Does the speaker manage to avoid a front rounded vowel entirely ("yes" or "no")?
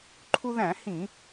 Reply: yes